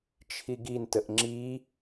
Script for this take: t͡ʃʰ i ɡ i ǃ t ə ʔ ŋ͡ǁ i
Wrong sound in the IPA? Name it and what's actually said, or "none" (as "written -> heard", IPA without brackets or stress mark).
ǃ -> n